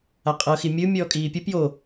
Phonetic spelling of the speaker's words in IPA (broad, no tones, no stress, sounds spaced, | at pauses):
a qʼ ɤ x i mʲ ɯ mʲ ɔː kʼ iː pʲ ɯ p j o